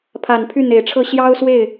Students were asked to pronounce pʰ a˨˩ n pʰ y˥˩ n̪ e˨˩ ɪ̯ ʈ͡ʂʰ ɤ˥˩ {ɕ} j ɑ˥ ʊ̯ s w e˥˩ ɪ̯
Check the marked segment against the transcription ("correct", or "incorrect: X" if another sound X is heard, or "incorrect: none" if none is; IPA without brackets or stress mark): correct